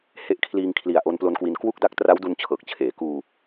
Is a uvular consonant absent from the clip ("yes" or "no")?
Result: yes